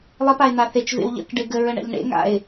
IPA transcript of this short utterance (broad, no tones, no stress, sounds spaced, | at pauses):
lˠ ɪ p a ɪ̯ n̪ a θ e t͡ʃ v ḛ w ʎ ə̰ k ɖ ɪ ɡ ə ɹ ə ɳ ɛ̰ ʎ ɳ ḛ ŋ a̰ ɪ̯